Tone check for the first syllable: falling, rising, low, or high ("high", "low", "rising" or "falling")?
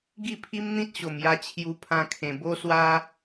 falling